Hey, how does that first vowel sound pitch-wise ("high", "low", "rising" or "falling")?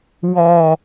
high